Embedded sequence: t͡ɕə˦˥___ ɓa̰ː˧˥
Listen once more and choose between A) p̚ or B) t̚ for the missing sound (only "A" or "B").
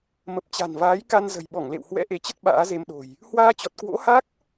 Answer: B